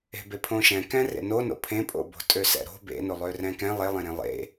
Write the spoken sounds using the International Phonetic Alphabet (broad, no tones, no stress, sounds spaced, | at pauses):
e̤ b e pʰ õ ʃ ɛ̃ k ɛ̃ r ḛ n o n o̰ pʰ ẽ pʼ o̰ b o̤ tʼ ø s ɛ̰ ɾ o̤ b ḛ n o lˠ ø r ɛ̃ k ɛ̃ lˠ e lˠ ẽ ɾ ẽ lˠ ḛ